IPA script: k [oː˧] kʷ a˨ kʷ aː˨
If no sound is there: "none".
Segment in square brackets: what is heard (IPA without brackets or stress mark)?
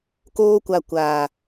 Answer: oː˧